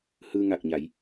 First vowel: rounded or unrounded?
unrounded